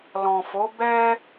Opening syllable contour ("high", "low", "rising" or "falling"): low